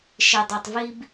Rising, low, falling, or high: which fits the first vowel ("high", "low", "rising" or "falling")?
low